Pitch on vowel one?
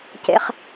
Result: low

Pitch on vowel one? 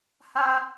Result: high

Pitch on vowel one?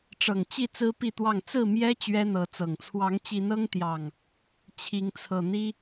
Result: low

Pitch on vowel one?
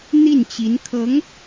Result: falling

